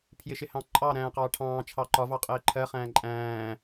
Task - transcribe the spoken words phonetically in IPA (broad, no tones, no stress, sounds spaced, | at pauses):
pʰ j ɪ ʃ ɪ h ɑ̃ ǃʼ ɑ ɾ æ̃ː q ɑː ʈʰ ɑ̃ː t͡ʃʰ ɑ ǃ ɒ v ɑ qʼ ɪː ǃʰ ɜ χ æ̃ː ǃʼ æ̃ː